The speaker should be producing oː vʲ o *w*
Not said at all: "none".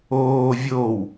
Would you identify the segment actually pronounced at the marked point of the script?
w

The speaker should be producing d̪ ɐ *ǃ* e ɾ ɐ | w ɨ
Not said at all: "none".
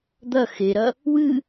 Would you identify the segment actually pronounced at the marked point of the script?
x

